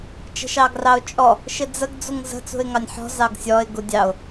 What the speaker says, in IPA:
t͡ʃ ə̤ ʃ ɑ ɡ r ɑ ʊ̯ t͡ʃʼ ɔ | ʃ ɪ d͡z ə ɡ d͡z u ŋ z ə̤ t͡s ṳ ɪ̯ ŋ ɑ nʲ ħ ɔ̤ z ɑ ɡ sʲ ɔ ɪ̯ ɡ u dʲ ɑ ʊ̯

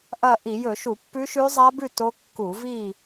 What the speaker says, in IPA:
ʔ ɐ˥˨ ʔ i˧˩˧ j ɵ˧˩˧ ʃ u˧˩˧ pː ʉ˦˥ ʃ ʉ˦˥ zˤ a˦˥ b ʉ˥˨ t o˦˥ kː u˧˩˧ v i˥˨

